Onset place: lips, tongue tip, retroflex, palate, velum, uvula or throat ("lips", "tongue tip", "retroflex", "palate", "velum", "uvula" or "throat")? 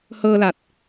throat